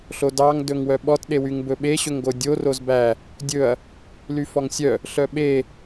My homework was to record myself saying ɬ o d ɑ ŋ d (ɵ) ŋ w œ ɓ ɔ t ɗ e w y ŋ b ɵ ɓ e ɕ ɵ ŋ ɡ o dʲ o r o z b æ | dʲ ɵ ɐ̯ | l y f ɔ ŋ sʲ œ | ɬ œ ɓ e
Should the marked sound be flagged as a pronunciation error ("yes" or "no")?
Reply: no